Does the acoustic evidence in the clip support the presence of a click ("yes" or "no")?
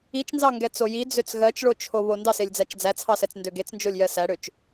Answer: no